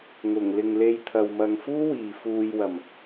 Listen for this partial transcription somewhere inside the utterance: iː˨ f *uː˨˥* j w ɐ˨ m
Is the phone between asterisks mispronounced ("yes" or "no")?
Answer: yes